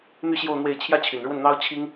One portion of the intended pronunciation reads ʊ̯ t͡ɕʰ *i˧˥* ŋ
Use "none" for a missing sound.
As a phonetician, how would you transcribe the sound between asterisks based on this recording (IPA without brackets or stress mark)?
i˥